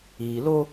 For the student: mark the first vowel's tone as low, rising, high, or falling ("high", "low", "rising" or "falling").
low